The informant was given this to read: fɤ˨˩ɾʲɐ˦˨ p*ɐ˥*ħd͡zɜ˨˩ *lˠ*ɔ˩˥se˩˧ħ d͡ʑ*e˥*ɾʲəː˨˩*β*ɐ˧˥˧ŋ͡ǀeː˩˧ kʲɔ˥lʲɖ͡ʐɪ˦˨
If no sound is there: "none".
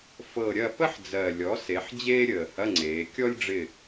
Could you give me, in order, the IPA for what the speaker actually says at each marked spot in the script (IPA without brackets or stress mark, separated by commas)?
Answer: ə˥, lʲ, eː˥, h